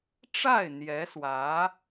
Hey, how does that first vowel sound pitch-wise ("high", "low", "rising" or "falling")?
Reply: falling